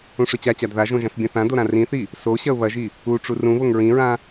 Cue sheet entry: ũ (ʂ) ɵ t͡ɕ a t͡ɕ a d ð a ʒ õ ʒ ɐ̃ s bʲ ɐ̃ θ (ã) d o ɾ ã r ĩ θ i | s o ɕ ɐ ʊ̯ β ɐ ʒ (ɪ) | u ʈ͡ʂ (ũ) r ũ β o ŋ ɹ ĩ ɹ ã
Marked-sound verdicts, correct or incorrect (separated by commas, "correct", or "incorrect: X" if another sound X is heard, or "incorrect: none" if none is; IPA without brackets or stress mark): correct, correct, incorrect: i, incorrect: u